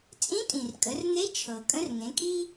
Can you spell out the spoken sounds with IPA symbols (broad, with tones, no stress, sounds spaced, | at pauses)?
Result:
t͡sʼ ĩ˧˥ tʼ ĩ˩ r kʼ ə˩˧ r n̪ e˧˥ t͡ʃʰ ɤ˩ kʼ ə̃˧˥ r ŋ ẽ˩˧ kʼ i˥